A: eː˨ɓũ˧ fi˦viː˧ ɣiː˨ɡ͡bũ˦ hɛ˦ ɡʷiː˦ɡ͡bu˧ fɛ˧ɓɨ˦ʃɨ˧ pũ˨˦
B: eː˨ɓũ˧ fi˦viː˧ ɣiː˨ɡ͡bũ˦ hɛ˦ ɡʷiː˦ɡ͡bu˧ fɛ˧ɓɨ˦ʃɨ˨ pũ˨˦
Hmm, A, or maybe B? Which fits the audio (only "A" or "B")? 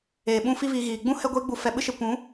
A